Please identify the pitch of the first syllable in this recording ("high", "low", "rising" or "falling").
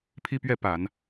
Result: high